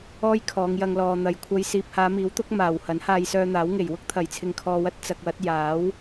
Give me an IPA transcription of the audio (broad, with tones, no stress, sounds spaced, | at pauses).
ɔː˥ j kʰ ɔː˨˧ ŋ j ɐ˧ ŋ l ɔː˨ n̪ ɐ˨ j kʷʰ ɐ˧ j s iː˨ p̚ h aː˨˧ m iː˨˥ w t̪ ʊ˨˥ k̚ m aː˨˩ w h ɐ˨˥ n h aː˧ j s œː˧ n̪ aː˨˥ w ŋ e˨˩ j w ʊ˥ k̚ t̪ʰ ɐ˨˩ j t͡sʰ ɪ˨ ŋ kʰ ɔː˧ w ɐ˥ t̚ t͡s ɐ˧ k̚ w ɐ˨˥ t̚ j aː˨˥ w